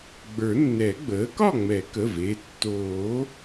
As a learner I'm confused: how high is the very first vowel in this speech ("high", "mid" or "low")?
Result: mid